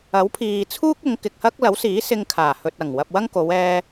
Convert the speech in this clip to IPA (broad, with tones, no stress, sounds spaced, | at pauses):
ɐ˨˥ w pʰ iː˨ t͡sʰ uː˥ k̚ ʊ˨˧ ŋ k ɪ˨ k̚ h ɐ˥ k̚ l ɐ˨˥ w s iː˨˥ s ɪ˧ ŋ kʰ aː˨˩ h ɵ˨ t̚ ɐ˨˩ ŋ w ɐ˧ p̚ w ɐ˥ ŋ k o˨˧ w ɛː˧